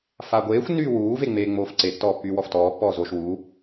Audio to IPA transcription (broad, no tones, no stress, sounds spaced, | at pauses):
f a ɡʷ eː xʷ nː yː w uː v e ŋ͡m eː ŋ͡m oː f ǀ e tː ɔː pː yː w ɔ f t ɔː pː ɔː z o ʃ w u